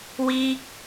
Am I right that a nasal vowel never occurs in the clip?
yes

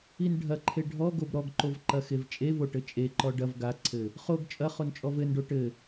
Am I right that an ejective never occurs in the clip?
no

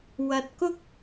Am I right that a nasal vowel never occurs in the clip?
yes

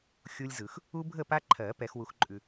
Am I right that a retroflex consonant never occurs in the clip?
yes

